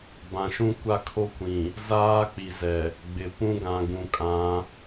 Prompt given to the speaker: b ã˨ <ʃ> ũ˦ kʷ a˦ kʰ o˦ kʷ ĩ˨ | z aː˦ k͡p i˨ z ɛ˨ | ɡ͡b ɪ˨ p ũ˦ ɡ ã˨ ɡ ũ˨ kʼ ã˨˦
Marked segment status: correct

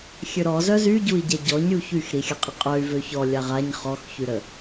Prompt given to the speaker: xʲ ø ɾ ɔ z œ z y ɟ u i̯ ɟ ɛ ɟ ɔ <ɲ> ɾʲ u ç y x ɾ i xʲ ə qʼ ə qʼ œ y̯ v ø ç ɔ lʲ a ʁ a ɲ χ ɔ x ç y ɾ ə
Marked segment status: correct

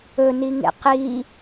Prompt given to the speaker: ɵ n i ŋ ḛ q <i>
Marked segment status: correct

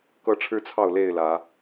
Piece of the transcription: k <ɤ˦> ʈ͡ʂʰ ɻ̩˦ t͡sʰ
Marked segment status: correct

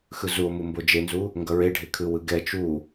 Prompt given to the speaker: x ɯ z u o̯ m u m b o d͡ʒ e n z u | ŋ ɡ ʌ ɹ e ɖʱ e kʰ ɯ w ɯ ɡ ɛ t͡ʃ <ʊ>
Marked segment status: incorrect: u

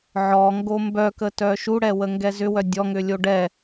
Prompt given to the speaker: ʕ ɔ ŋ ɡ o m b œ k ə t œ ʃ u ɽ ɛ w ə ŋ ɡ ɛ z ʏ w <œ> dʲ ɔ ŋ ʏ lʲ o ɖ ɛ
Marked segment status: correct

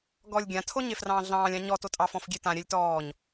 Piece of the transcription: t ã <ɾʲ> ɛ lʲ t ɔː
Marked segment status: correct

